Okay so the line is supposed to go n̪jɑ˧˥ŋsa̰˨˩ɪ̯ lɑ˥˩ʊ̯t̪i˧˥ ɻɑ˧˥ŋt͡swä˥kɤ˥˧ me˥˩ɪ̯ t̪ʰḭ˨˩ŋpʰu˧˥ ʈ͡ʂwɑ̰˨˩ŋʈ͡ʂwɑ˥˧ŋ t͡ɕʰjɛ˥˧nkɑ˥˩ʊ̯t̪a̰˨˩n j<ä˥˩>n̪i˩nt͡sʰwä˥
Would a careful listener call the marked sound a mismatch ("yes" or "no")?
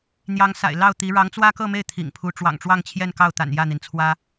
no